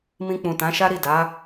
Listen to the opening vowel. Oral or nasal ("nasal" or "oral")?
nasal